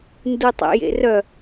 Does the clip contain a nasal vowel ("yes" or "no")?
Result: no